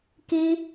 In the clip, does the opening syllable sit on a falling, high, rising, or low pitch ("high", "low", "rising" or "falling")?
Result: high